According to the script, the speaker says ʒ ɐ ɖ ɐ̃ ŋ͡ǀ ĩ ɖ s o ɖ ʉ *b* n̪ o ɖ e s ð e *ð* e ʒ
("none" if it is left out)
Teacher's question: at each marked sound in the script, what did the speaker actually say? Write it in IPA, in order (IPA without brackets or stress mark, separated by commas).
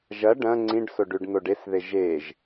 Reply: ɖ, ʒ